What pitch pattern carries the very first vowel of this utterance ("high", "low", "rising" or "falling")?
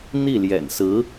falling